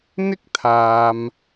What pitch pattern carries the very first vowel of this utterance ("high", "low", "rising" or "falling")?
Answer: high